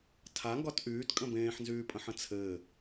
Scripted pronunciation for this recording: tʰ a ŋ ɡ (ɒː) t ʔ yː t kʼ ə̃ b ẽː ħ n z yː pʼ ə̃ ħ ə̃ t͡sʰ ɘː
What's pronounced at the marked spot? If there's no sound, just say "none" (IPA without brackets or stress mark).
ɒ